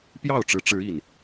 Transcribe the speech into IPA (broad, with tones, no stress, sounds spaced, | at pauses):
p j ɑ˥˨ ʊ̯ ʈ͡ʂ ɻ̩˨˦ ʈ͡ʂ ɻ̩˨˦ i˨˩ n